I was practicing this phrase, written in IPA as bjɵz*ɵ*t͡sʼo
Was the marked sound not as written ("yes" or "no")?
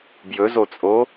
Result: yes